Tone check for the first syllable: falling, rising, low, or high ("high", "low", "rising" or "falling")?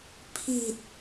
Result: low